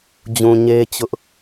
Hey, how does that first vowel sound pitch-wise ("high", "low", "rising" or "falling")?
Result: low